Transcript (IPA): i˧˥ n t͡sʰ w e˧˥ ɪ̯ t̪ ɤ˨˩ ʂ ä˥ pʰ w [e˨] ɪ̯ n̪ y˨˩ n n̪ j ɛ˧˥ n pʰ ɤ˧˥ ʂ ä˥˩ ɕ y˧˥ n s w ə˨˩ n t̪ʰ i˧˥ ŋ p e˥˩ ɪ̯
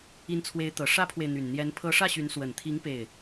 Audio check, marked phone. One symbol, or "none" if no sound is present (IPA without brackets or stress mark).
e˨